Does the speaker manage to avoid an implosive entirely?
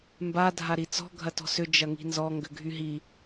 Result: yes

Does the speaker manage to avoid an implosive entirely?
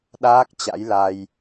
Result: no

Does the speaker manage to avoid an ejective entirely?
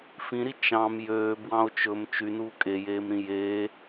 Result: no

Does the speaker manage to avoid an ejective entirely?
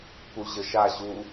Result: yes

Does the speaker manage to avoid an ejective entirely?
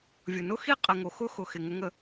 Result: no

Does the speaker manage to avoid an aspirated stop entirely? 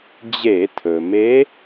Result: no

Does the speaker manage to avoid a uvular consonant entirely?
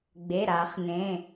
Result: no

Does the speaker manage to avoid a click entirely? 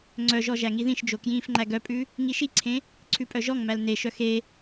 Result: no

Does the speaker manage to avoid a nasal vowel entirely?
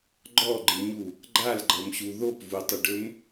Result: yes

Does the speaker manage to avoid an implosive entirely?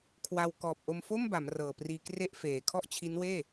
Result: yes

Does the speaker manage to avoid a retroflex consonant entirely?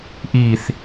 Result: yes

